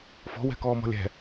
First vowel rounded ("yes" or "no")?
yes